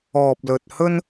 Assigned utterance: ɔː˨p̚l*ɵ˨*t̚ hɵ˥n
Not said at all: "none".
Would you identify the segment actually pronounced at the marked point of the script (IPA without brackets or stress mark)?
ɵ˨